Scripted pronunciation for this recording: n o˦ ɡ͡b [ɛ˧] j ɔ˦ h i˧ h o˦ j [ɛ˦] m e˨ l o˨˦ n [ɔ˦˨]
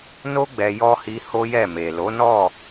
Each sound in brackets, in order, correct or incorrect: correct, incorrect: ɛ˦˨, correct

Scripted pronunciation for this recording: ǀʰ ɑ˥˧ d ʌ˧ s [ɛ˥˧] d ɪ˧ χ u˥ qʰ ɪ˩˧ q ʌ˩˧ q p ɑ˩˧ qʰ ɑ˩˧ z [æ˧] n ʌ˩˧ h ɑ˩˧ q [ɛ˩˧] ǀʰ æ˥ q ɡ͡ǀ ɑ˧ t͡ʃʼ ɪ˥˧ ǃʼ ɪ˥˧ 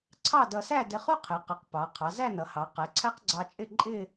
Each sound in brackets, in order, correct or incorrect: incorrect: æ˥˧, incorrect: æ˥˧, correct

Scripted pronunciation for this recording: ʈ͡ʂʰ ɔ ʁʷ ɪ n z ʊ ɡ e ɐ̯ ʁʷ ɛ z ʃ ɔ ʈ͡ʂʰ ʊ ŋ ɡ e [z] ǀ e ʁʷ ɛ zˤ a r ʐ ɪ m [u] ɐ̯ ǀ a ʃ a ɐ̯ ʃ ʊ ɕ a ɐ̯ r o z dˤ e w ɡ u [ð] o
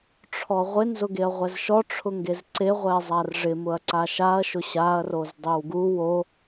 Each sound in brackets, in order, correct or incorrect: correct, incorrect: ʊ, incorrect: w

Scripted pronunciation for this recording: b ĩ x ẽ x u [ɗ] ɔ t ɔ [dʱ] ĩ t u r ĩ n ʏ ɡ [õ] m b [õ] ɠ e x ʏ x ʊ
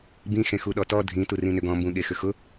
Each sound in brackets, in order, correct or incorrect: correct, correct, incorrect: ɔ̃, incorrect: ũ

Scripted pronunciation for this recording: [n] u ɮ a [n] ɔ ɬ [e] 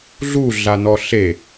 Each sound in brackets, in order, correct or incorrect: incorrect: ɮ, correct, correct

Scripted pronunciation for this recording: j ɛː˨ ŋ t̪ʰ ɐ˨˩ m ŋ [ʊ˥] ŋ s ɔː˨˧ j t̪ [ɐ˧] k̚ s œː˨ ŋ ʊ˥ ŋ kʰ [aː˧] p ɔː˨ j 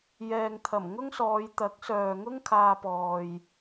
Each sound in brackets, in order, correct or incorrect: correct, incorrect: ɐ˨˥, correct

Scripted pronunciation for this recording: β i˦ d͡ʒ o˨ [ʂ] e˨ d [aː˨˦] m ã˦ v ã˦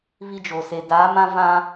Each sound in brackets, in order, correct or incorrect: incorrect: s, correct

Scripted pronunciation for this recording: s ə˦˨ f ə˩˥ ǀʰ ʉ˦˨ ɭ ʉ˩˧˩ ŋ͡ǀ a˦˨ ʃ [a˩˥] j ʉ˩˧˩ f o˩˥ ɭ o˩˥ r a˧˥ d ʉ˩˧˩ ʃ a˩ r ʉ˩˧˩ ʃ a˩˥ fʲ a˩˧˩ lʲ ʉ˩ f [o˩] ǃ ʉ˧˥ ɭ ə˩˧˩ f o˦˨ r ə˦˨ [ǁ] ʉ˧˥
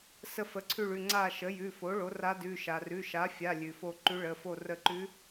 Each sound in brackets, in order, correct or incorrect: incorrect: ə˩˥, incorrect: o˦˨, incorrect: ǃ

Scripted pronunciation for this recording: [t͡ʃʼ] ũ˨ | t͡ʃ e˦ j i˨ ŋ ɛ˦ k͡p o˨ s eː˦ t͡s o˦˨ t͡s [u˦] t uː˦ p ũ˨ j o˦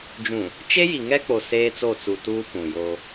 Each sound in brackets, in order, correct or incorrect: incorrect: d͡ʒ, incorrect: u˨

